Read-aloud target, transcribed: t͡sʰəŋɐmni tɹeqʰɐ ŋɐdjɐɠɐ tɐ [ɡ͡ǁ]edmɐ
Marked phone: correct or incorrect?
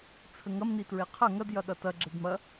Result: correct